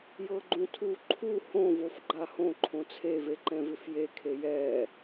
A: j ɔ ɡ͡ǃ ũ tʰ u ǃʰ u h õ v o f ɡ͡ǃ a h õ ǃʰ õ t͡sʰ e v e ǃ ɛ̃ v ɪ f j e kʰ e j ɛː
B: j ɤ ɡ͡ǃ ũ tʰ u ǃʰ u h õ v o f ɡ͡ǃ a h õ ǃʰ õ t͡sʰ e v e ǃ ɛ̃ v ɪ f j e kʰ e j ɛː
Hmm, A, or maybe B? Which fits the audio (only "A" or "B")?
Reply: B